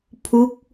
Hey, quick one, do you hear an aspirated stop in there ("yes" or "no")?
yes